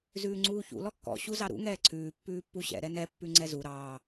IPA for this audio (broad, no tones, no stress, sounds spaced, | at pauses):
z ʉː ŋ͡ǀ uː ç ṵ l ɔ kː ɔ̰ ɕ u z ɑ ɾ ṵ ŋ ɛː ǀʰ ʉː pː ʉː pː u ɕ ɛ̰ ɾ ɛ n ɛ pː ʉ ŋ͡ǀ ɛ z u ɾ ɑː